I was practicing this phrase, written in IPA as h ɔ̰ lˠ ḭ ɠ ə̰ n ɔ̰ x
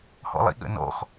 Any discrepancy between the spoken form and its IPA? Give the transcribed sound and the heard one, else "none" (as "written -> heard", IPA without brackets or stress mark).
none